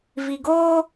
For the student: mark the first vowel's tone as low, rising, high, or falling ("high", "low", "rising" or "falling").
low